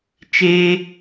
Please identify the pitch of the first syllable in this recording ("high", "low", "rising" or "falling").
high